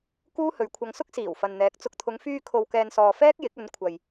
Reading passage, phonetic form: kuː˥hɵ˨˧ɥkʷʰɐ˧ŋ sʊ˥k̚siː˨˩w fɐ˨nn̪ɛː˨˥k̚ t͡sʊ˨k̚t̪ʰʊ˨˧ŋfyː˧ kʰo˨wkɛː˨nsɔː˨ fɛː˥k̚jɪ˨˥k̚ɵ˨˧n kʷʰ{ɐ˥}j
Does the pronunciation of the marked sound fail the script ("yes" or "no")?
yes